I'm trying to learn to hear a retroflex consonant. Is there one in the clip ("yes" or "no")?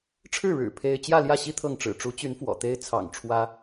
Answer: yes